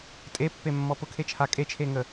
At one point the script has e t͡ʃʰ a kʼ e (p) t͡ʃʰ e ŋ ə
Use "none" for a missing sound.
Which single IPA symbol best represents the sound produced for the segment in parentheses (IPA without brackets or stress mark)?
none